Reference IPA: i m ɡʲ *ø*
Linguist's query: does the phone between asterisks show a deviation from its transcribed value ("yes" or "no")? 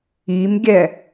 yes